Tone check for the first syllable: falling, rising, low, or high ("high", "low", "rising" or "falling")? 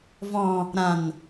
low